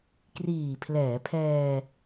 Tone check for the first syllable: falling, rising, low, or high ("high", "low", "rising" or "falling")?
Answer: low